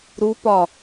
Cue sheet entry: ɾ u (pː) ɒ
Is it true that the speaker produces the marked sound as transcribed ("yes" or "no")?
no